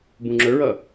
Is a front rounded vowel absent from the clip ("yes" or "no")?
yes